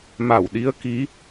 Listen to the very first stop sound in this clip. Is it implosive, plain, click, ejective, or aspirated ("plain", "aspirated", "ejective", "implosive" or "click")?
implosive